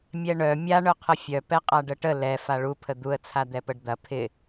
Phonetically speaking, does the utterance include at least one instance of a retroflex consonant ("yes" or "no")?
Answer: yes